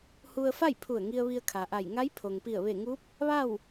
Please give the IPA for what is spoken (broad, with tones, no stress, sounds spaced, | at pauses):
h u˧ ə̯ f a˥˨ j pʰ u˧˩ ə̯ ŋ i˧ ə̯ ʋ i˧ ə̯ kʰ a˩ ʔ a˧˩ j ŋ a˧˥ j pʰ o˩ ŋ p i˧˩ ə̯ ʋ e˧˩ ŋ u˧˥ p̚ | ʋ a˥˨ w